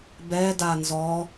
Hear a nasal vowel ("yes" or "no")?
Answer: no